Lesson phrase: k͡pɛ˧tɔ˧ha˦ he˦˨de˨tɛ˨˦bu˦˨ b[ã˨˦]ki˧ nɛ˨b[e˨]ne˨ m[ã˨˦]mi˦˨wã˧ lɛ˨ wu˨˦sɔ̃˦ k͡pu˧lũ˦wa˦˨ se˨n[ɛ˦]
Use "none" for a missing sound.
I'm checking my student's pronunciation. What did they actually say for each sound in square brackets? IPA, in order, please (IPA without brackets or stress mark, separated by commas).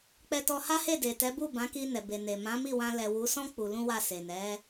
ã˨˦, e˨, ã˨˦, ɛ˨˦